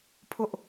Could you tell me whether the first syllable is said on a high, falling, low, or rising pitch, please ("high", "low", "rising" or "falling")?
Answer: high